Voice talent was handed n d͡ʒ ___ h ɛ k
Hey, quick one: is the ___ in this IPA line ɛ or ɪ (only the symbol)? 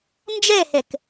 ɛ